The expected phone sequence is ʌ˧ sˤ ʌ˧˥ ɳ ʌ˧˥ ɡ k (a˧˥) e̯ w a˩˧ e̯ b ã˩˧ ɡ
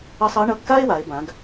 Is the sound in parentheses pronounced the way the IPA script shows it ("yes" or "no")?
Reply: no